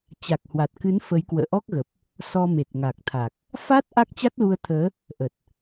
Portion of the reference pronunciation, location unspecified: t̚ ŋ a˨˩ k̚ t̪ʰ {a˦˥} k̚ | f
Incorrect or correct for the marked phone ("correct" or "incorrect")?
incorrect